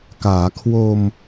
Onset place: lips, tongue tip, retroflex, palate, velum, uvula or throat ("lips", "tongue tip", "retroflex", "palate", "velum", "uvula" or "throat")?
velum